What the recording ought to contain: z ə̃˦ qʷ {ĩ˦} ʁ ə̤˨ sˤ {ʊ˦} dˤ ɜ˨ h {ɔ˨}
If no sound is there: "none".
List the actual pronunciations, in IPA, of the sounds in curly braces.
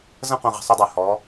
ĩ˨, ʊ˦, ɔ˨˦

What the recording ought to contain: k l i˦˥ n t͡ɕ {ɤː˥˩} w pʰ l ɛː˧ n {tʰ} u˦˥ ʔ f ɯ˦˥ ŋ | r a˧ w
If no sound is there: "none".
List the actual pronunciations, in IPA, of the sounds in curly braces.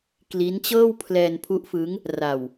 ɤː˥˩, pʰ

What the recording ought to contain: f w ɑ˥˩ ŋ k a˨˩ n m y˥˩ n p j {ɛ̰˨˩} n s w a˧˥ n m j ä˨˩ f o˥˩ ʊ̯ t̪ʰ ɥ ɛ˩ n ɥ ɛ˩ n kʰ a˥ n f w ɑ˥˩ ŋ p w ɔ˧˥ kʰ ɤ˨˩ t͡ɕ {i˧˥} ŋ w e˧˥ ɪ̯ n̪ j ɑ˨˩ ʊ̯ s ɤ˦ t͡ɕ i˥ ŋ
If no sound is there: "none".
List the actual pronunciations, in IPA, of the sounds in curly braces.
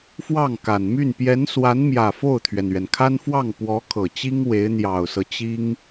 ɛ˧˥, i˥

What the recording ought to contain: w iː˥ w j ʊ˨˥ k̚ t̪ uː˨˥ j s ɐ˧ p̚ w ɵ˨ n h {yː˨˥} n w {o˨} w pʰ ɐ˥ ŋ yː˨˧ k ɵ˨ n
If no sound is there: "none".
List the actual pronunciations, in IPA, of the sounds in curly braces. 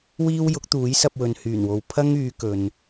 yː˨˩, o˨

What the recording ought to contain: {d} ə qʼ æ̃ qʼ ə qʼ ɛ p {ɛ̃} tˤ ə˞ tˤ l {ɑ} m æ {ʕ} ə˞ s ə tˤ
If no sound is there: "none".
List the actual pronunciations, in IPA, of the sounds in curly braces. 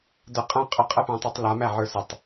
d, æ̃, a, ʕ

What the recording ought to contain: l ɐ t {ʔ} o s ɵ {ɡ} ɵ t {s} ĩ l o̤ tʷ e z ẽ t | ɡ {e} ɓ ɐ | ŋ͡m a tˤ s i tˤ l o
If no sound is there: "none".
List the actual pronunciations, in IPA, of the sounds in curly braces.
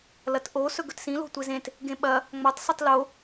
ʔ, ɡ, s, ẽ

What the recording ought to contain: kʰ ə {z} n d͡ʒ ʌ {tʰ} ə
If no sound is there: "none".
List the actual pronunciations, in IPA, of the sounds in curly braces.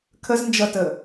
z, t

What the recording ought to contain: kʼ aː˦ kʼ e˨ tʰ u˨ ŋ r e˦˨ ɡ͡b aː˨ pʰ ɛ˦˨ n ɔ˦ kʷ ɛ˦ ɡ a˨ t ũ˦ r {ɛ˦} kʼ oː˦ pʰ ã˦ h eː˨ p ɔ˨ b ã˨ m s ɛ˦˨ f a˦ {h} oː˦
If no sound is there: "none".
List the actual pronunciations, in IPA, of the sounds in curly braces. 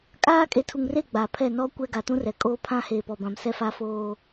ɛ˨, f

